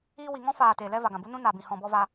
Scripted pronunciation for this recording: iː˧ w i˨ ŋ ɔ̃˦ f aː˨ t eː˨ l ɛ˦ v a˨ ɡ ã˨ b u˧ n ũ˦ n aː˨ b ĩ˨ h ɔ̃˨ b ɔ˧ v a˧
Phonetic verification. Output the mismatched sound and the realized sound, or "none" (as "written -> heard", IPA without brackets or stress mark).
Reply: none